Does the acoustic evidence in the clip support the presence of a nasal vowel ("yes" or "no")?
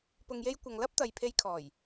no